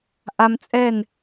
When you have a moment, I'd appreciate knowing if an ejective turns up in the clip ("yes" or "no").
yes